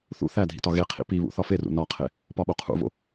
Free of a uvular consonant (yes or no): no